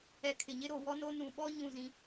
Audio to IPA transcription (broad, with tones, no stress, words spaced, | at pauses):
ɛ˨kʰɪ˨ɲɪ˦ ɾo˨wɔ˦no˦ nũ˨ɓɔ˦ ɲũ˦˨zĩ˦